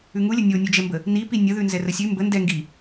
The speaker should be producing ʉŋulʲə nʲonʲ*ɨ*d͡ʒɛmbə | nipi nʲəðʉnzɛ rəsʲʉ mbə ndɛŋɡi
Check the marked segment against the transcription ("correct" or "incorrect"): incorrect